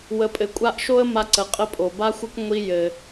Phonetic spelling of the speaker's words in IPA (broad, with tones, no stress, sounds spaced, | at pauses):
w ə˧ pʼ ɘ˧ kʷʼ a˥ ʔ ʃ o˥ ə̯ m a˧ ǀ ə˩ qʼ ə˧ pʼ o˩ b a˥ xʷ ɘ˥ kʷ ŋʷ i˧ j ɘ˩